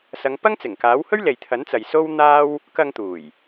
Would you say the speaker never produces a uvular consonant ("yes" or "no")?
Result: yes